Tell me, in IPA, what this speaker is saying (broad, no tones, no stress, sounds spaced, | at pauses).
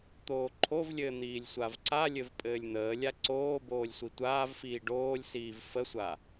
t̪ oː ǃʰ o v lʲ ɘː n̪ iː lʲ sʷ a v ǀ a lʲ ɘ v pʼ ɘː lʲ n̪ əː lʲ a ǀ oː b oː lʲ sʷ i tʷ aː v f iː ɖ oː lʲ s iː v f ə sʷ a